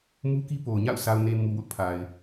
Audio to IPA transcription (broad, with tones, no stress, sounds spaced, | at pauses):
m u˦ k i˦ p o˨ ʊ̯ ɲ a̰˦˨ ʊ̯ sʰ a˨ ʊ̯ n e˨ m u˨ w ʊ˦ ʔ pʰ a˨ ɪ̯